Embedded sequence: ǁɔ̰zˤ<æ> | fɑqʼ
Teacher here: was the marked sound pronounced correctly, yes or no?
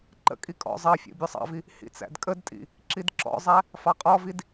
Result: yes